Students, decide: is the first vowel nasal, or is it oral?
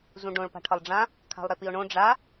nasal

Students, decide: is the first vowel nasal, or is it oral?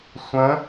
nasal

